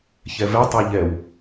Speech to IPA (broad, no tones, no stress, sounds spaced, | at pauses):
ç ɛ v ɛ tˤ e ʎ ɛ w